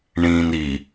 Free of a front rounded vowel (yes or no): yes